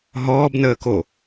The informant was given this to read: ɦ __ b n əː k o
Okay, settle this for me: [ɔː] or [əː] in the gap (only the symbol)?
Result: ɔː